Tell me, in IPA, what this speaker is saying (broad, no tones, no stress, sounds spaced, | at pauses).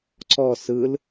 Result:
ǀ ɔ s ɯ l